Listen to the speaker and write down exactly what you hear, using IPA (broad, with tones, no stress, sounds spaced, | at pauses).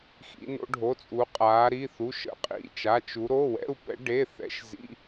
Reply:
x ḭ˧˥ n o̰˧˥ ɖʱ o˧˥˧ t͡sʼ u˧˥ qʼ aː˧˥ ɾ i˧˥˧ θ u˧˥˧ ʃ ə̰˧˥ qʼ ḭ˧˥˧ t͡ʃ a˧˥˧ t͡ʃ u˧˥ ɾ o˧˥˧ w ɛ̰˧˥˧ u̯ p ɛ̰˧˥ ɖ e˧˥˧ θ ɛ̰˧˥ ʃ z ḭ˧˥˧